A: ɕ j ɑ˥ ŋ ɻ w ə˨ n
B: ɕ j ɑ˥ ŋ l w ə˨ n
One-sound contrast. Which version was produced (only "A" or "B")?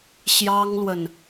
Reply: B